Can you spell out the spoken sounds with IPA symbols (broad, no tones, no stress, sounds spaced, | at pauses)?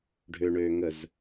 ɖʱ ø ɳ øː ŋ ə z